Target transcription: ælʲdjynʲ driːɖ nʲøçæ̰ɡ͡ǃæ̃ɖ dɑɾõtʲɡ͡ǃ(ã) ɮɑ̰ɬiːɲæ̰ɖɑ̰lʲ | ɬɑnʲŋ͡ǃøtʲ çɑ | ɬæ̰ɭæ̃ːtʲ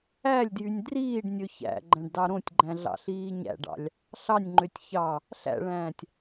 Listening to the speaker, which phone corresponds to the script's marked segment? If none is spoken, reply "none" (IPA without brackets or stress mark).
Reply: æ̃